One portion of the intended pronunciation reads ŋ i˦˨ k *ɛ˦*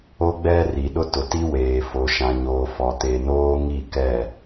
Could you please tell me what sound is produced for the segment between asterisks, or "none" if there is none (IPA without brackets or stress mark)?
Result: ɛ˦˨